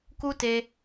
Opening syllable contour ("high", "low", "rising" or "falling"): high